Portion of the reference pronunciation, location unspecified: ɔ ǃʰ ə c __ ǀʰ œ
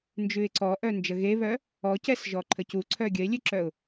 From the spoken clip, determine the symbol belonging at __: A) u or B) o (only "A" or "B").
A